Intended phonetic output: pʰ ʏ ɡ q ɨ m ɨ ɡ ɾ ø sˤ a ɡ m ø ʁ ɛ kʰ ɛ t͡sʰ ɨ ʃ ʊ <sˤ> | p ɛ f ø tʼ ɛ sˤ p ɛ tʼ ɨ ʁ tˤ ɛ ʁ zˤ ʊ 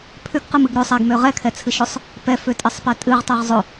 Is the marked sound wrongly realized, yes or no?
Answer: no